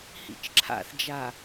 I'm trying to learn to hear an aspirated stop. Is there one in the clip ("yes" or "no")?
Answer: yes